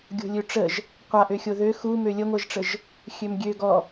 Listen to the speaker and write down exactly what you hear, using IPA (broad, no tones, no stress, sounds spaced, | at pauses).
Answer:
ɡʲ o̤ lʲ ø ʈ͡ʂ ə ʒ | qʷ a ʔ ø xʲ o ð ø x u m ø lʲ ə ŋʷ ɛ ʒ ʈ͡ʂ ə ʒ | xʲ ø m ɡʲ ø ɡ ɔ